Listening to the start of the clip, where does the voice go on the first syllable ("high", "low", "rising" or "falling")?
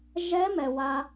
rising